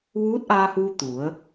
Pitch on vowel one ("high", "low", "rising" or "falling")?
rising